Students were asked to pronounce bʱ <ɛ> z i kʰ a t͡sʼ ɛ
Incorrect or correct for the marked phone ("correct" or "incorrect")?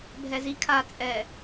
correct